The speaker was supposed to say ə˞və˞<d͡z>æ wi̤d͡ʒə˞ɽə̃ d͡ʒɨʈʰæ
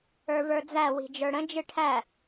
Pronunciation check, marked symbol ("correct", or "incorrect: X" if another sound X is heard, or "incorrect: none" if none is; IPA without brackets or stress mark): correct